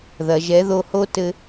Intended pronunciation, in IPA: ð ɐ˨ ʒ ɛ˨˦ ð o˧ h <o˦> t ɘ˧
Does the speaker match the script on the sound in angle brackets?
yes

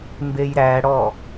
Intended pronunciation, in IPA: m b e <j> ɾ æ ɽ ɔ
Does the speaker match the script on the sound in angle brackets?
yes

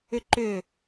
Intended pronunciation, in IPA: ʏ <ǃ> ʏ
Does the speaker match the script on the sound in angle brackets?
yes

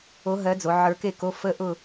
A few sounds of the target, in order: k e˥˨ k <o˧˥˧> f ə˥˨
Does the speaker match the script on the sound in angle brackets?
yes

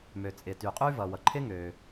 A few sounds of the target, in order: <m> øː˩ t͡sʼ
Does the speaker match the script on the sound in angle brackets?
yes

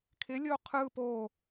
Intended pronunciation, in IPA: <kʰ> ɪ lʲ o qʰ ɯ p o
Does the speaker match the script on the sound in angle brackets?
yes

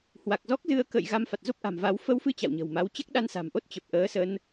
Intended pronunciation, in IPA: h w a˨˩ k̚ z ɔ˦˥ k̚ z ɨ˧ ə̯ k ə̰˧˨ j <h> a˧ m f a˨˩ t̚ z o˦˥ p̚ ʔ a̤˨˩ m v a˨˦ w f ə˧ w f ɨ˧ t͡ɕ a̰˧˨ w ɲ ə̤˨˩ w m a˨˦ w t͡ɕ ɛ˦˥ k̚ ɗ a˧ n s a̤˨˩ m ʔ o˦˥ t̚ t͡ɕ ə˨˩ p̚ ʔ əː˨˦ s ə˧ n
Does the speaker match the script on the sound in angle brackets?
no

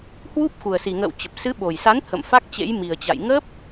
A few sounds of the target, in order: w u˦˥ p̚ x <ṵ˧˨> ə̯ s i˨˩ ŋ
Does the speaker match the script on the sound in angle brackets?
no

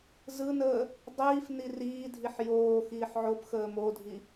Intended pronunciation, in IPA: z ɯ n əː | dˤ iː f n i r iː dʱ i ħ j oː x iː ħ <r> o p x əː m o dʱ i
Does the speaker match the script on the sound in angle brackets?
no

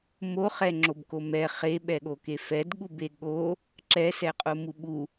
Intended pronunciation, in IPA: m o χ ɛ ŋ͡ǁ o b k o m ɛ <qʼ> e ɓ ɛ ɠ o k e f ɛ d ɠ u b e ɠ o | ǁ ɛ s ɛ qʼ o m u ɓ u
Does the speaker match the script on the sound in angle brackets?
no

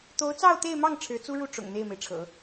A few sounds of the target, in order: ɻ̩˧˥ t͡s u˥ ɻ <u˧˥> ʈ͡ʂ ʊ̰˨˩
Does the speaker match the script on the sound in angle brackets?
no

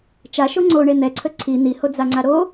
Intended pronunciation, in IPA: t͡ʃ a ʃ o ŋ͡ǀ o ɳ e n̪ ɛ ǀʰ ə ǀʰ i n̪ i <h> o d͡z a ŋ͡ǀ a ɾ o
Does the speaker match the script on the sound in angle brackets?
yes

